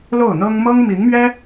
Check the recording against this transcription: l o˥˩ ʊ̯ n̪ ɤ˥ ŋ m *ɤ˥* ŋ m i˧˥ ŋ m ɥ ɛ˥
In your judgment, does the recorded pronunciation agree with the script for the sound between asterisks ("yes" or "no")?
yes